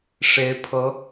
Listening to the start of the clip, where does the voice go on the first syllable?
rising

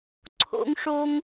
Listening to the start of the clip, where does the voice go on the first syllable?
high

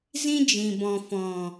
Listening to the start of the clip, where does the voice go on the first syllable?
high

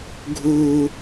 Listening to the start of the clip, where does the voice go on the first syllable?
low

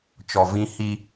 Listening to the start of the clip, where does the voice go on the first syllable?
low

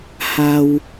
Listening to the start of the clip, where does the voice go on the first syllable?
low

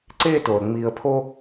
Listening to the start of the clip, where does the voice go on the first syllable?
high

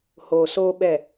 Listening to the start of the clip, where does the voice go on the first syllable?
low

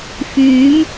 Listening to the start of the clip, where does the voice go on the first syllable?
rising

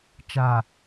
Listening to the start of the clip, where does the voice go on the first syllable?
low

